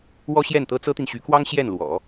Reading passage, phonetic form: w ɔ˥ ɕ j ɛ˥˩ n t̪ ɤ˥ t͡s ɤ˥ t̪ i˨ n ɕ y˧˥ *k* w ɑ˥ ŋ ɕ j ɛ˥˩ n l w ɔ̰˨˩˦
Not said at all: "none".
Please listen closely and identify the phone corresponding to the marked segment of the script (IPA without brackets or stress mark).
k